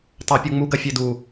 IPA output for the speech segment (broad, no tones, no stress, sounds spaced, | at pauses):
tˤ a pʲ u ŋ͡m u ɡ ɐ fʲ e d u